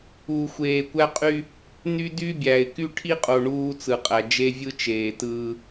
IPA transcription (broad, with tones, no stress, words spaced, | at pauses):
uː˨xʷeː˨kʷæ˦ qʼy˦ | ny˦dy˦bʲæ˨ɪ̯ ky˦ʈʰi˦qʼo˨ ɳuː˦t͡sɯ˨qʼæ˨ d͡ʒe˦vʲɯ˦t͡ʃeː˨tɯː˦